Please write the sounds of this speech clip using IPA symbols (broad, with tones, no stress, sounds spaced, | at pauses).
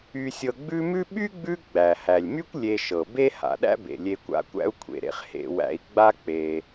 y˨ sʲ ɤ˨ ɡ͡b ʉ˦ m ʉ˥ ɓ y˥ ɡ͡b ʉ˦ ɡ͡b æ˩ h æ˩ lʲ m y˥ kʷ lʲ e˨ ʃ ɤ˩ b e˥ h a̰˩ ɗ æ̰˥ b ḛ˩ lʲ e˨ kʷ a̰˦ kʷ æ̰˥ u̯ kʷʰ ḛ˨ ɾ ḛ˨ χ h ḛ˨ w æ̰˨ i̯ ɡ͡b a˦ k͡p e˩